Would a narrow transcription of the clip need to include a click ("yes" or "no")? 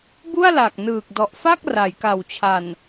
no